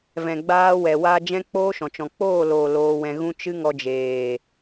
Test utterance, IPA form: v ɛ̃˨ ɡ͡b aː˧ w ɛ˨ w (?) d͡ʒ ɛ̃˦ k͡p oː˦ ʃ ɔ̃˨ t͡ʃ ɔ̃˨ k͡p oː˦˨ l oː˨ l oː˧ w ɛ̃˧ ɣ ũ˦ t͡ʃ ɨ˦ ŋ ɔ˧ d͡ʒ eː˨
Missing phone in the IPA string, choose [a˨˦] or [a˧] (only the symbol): a˧